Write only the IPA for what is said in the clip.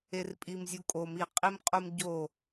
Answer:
e r pʼ i m zʲ u kʼ o m i qʼ i m qʼ u m ɟ o

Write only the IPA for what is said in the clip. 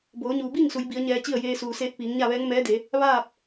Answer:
b oː˩˧ ɲ uː˩ b iː˥˨ ŋ s u˩˧ j b i˩˧ ə̯ ɲ ɛː˧ t͡ɕ i˥˨ ə̯ j eː˧ s uː˩ s eː˧ t̚ p iː˩˧ ŋ ɲ a˥˨ ʋ ɛː˧˥ ŋ m ɛː˧˥ d e˩˧ | ʋ aː˥˨ p̚

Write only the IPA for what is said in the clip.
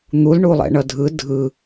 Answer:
n̪ u l ɳ u lˠ ɛ̰ ɳ ʌ dʱ ɯ dʱ ɯ

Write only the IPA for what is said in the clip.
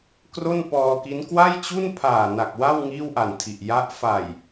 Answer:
k r o˥˩ n p ɔː˧ k i˦˥ n k w a˥˩ j t͡ɕ u˥˩ n pʰ aː˨˩ n a˨˩ k̚ w a˥˩ w ŋ iː˥˩ w ʔ a˨˩ n tʰ i˨˩ ʔ j a˦˥ ʔ f a˨˩ j

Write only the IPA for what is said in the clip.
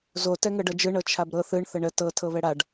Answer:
z o t ɛ ŋ ɤ ɖ ɤ d͡ʒ ɯ ɳ ɤ t͡ʃʰ a b ɾ ɤ θ ɯ ɳ θ ə ɳ ə t ɤ tʰ ɤ β ɛ ɽ a ɖ

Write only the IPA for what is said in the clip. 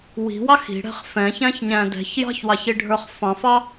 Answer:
w i̤ w ɑ x i̤ ɽ ɛ̤ χ f ɛ̃ ç æ̃ ç ɲ æ̃ d ɛ̤ ç j ɑ̤ ç w ɑ ç i ɖʱ ə˞ χ f ɑ̃ f ɑ

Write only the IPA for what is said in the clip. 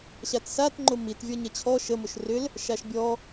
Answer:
ɕ a t s a t ŋ͡ǃ ʊ m i t vʲ ɔ ɲ ɛ t͡ɕʰ ɔ ʃ ə m o ʃ r ʏ l | ʃ a ʃ bʲ ɔ

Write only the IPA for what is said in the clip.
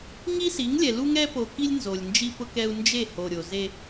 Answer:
ŋ i˦ s i˨˦ ŋ lʲ ɛ˨ l u˦ ŋ ɛ˦ p o˨ k i˦ lʲ n z o˨ lʲ n d͡ʒ i˦ p ʊ˦ k ɛ˦ u̯ n d͡ʒ e˦˨ h o˨ ɾʲ o˨ z e˦

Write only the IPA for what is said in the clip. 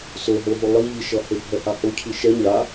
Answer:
s o ɦ o ɦ u lˠ i ʎ i ʃ ʌ h e bʱ ɛ h a h o cʰ i ʃ ɛ ɲ a

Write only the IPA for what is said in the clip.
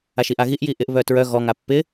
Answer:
a ʃ i ʔ a ɣ i ʔ j i ʔ ɪ ʔ β œ t ɹ œ ɣ ɔ ŋ a pː ɪ

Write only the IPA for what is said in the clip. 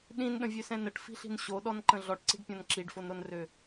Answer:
ɗ ĩ n ɗ ə̃ vʲ ø s ɛ̃ n ə ʈ f i̤ ɬ i̤ n ɕ o ɗ ɔ n ǃ ə̃ ɮ ɔ ʈ ǀ i̤ ɖ pʲ ɔ̃ n ǁ i ɖ f o n ɾ o n r ø

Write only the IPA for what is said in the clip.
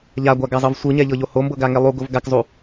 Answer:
ʎ a ɡʷ a ɡ a zˤ ɤ v sʷ ɯ ɲ ɛ ʎ ɤ ʎ o h o m b ɤ ɡ a ŋ ɛ lˠ u ɡ o v ɡ a k zˤ u

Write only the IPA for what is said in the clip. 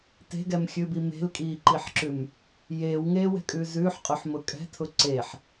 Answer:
t e̤ ɡ ɛ m xʲ ʉ b i m e̤ l kʼ iː ǃ i ħ ǁ ʉ m | j eː w ŋ eː w ɛ̤ kʼ ʉː z ʉː ħ qʼ ʊ ħ m ʊ kʼ ɛ̤ tʰ ʊ ǀ e ħ

